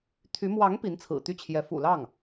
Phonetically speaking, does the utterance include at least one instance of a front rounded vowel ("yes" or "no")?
yes